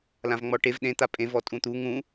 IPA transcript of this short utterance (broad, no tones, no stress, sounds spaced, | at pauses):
l ã v ŋ͡m ɔ ʈ e v ɗ ẽ t̪ a pʼ ẽ v ɔ tʼ ũ t̪ u ŋ ũ